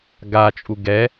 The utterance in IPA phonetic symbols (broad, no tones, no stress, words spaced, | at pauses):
ɡat͡ʃʼu ɡɛ